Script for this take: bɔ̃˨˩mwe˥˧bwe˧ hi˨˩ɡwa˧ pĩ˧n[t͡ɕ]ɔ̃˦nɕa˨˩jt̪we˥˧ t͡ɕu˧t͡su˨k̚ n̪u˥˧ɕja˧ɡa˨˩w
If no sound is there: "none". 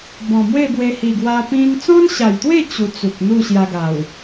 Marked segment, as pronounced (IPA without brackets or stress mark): t͡s